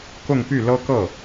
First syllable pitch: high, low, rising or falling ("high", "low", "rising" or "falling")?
falling